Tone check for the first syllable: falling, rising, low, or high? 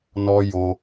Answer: high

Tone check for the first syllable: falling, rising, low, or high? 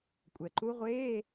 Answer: low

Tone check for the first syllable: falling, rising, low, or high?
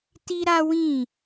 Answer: high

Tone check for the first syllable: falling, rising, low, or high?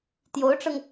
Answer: rising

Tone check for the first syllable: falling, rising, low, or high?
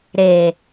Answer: low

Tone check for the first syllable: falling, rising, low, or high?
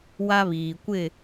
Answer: high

